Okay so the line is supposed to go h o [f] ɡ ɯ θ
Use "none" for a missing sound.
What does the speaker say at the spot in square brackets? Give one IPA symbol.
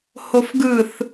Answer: f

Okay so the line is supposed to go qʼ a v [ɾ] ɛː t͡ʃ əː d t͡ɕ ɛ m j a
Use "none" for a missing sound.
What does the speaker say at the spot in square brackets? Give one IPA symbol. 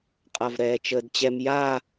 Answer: ɾ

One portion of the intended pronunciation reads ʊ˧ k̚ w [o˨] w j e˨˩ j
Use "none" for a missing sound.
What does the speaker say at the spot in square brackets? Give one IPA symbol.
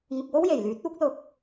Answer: o˥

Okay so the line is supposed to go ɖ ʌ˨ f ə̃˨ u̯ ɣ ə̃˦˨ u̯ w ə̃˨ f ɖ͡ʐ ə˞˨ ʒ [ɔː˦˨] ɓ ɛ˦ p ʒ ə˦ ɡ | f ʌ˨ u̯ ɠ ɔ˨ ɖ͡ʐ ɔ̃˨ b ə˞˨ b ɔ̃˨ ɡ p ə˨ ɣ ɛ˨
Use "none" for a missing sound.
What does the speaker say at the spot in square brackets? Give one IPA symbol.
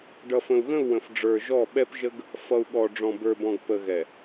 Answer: ɔ˦˨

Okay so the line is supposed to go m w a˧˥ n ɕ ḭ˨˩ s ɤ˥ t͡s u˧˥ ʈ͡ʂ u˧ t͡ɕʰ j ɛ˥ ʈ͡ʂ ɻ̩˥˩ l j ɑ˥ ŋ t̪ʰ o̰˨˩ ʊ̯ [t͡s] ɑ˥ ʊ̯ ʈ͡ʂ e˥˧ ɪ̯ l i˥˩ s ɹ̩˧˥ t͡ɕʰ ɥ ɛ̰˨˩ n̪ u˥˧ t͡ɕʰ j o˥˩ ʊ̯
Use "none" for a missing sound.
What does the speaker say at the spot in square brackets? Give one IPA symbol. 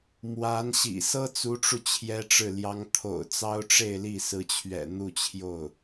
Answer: t͡s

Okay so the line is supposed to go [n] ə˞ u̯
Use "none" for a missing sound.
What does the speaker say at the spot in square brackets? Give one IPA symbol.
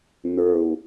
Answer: n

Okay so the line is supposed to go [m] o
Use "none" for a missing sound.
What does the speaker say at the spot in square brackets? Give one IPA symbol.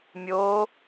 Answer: mʲ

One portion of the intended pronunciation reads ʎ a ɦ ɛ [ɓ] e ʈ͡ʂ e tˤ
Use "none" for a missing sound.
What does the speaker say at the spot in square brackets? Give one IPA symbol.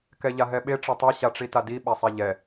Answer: ɓ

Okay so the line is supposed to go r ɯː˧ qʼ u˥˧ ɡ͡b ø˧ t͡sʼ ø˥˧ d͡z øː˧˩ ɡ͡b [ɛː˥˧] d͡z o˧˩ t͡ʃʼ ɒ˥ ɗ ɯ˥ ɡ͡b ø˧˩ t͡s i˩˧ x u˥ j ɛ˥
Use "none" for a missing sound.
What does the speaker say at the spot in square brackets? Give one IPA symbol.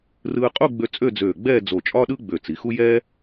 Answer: ɛː˥˧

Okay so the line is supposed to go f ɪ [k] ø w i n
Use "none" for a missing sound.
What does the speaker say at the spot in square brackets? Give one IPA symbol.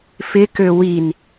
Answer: k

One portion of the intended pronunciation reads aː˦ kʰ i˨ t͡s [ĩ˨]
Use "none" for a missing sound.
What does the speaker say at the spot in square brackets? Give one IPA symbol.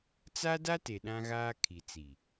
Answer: i˨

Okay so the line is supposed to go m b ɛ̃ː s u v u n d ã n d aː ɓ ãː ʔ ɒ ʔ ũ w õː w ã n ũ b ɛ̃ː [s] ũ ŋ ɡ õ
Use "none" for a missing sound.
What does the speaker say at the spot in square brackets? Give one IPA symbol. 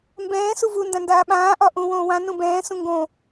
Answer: s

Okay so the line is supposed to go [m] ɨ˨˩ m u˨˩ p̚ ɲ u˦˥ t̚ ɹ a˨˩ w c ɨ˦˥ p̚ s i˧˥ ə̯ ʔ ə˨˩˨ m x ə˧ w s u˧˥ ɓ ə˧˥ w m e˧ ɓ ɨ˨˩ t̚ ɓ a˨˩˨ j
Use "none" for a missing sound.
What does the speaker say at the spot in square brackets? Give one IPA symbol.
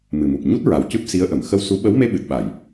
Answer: m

